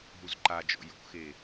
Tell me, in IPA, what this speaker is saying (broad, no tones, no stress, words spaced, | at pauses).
ɦuzǃad͡ʒɔ̰ jo̰xe